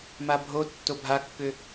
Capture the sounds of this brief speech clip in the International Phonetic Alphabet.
m a bʱ o tː o bʱ a kː ʏ

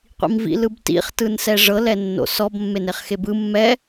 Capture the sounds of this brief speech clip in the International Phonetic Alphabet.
qʷ ḭ m v ḭ l ɯ b t ḭ χ t ɯ n s ɛ ʐ ɤ l ɛ nː o̰ s ɔ b mː e n e χ x e b ɯ mː ɛ

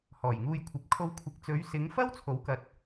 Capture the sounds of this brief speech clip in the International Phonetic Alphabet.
h ɔː˨˩ j ŋ uː˧ j kʷʰ ɐ˨˥ p̚ kʰ o˧ w kʷʰ ɪ˨˥ k̚ t͡s ɵ˨˧ ɥ s ɪ˨˧ ŋ f ɐ˥ w t͡sʰ o˨˥ w k ɐ˨˥ t̚

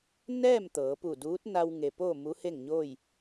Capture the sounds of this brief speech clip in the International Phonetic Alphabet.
n ɛː˥˨ m t̪ ɤː˩˧ p u˧˩ d uː˧˥ t̚ n a˧ w ŋ e˩ p oː˥˨ m u˧˥ h e˥˨ ŋ ɲ oː˥˨ j

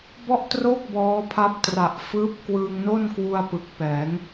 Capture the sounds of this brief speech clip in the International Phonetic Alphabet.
b ɔ˥˩ ʔ t r oː˥˩ k̚ b ɔː˦˥ pʰ a˦˥ p̚ t r a˨˩ ʔ f ɯː˦˥ p̚ k w ɯː˧ ŋ n o˥˩ n k w u˧ a̯ p ɯ˨˩ k̚ p ɛː˩˦ ŋ

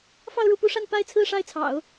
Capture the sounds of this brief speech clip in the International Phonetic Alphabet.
f ɑ˥˧ ʊ̯ ɻ u˥˩ p u˥ ʂ a˥˧ n p a˥˧ ɪ̯ t͡sʰ ɹ̩˥˧ ʂ a˥˩ ɪ̯ t͡sʰ ɑ̰˨˩˦ ʊ̯

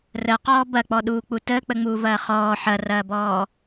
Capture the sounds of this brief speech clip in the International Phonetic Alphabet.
r ə q ɔː b ɐ k͡p ɔ ɗ uː k͡p u t əː k͡p ə ŋ͡m uː v ɐː χ ɔː ħ ɐ r ɐː b ɔː

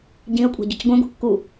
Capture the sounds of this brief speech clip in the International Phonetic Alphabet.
ɟ ĩ ə̯ kʷʼ a̤ ɟ ʊ c ɡʷ ẽ ɡʷ e̤ kː u

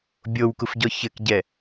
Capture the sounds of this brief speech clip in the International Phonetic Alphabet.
bʲ o w k u f ɟ ɔ ç ɘ k ɟ ɛ

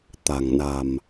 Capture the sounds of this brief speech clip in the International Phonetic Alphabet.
t̪ a̤˨˩ ŋ n a̤˨˩ m

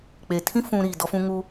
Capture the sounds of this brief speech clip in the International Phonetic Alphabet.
k͡p e˨ tʰ ĩ˦ f ũ˨ ɾ iː˨ d ɔ˦ f ũ˦ ŋ u˦

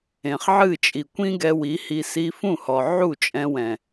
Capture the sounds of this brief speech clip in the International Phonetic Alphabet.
ẽ˨ χ ʕ ɨ˦˨ t͡ʃʼ i˨ kʷ ĩ˦ ɡ ɛ˧ w i˨˦ h i˧ s i˧ f ũ˦˨ h ɔ˨ ʕ u˦˨ t͡ʃʼ ɛ̃˧ w ɛ̃˨

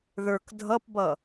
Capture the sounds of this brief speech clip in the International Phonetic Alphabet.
ð ə˞ k dʱ ʌ p b ʌ

